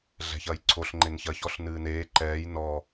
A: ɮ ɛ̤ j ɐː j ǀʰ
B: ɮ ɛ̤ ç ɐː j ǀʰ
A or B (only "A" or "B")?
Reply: B